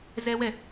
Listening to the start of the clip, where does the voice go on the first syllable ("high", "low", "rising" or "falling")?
high